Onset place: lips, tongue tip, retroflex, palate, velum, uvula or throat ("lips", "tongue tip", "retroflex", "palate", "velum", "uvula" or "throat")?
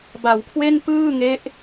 lips